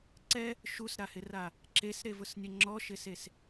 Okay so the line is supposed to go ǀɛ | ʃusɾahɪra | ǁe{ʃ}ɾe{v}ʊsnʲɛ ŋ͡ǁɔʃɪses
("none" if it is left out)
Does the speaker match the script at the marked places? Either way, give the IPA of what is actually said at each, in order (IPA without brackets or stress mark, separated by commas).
s, v